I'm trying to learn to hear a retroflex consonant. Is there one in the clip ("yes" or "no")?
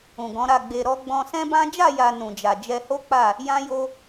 no